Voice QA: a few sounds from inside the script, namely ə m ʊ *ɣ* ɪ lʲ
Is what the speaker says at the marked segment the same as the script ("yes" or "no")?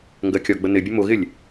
yes